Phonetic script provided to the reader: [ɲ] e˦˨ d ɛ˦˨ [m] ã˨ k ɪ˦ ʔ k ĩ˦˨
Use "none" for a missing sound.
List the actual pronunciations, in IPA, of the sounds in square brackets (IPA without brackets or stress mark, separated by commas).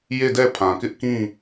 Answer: j, pʰ